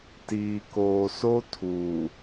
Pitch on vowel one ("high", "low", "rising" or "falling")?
low